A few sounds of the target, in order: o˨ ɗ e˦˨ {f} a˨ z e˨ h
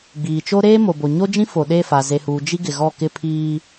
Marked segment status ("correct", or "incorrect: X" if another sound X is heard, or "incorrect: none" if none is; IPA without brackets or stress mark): correct